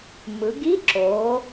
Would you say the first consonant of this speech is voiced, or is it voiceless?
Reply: voiced